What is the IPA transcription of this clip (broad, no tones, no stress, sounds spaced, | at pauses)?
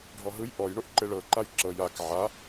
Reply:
ɖʱ ɔ ɦ ɯ j ʔ ɔ j ɳ o ʔ ǃ e ɭ ɤ ǃ a j ǁ ɤ j a k ʕ a